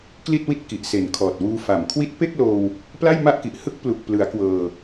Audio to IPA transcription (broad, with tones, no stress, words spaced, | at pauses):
kli˥˩t̚wi˥˩t̚ ki˨˩ʔse˨˩nkʰɔː˨˩t̚ wuː˧fa˨˩m kʰwi˦˥t̚pe˥˩k̚loː˧w | pla˥˩jma˥˩ʔki˨˩ʔ hɯ˦˥k̚ plu˨˩k̚plɯ˩˦a̯ kwɤː˧